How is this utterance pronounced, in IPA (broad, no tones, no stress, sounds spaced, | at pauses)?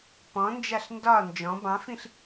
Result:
p ɔ̃ n d͡ʒ a ɬ n d ɒ n d͡ʒ ɔ̃ b ɑ̃ f ĩ ɬ